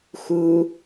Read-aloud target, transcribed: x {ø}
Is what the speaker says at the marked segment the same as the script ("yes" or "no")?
no